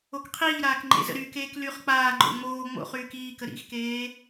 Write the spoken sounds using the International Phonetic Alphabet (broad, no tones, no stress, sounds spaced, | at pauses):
o k qʰ iː ɾ aː k ŋ͡ǃ ḛ z ə̰ ɾ y k eː k l y χ k͡p aː ŋ͡ǃ o̰ ŋ͡m oː ŋ͡m o̰ χ yː k iː k ə ɾ ḭ x k eː